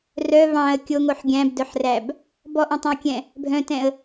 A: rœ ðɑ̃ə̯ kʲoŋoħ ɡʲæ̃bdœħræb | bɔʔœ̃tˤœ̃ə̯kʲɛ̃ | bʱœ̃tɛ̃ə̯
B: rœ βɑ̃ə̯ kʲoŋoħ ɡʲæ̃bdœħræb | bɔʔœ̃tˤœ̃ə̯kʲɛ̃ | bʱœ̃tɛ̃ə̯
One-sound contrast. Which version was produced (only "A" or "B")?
B